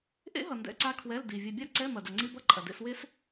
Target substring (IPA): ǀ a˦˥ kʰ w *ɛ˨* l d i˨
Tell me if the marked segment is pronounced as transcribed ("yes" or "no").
no